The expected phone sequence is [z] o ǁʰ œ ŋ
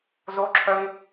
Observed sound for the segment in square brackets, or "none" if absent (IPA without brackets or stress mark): z